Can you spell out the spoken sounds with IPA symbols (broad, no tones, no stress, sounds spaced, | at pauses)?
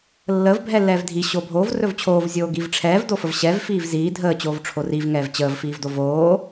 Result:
lː ə v bʱ ɛ lː ɛː v dʱ i ɕ oː bʱ oː v r ɵ v t͡ɕʰ oː v zʲ oː ɡ i v ʈ͡ʂʰ ɛː v d o f ə v ɕ ɛ v f iː v z iː dʱ əː t͡ɕ oː v ʈ͡ʂʰ o r i v ŋ ɛː v t͡ɕ əː v f iː v d o v oː